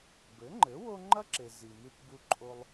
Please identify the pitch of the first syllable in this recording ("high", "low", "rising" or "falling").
rising